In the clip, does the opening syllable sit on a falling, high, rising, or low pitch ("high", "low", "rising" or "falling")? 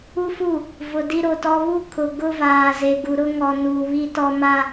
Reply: high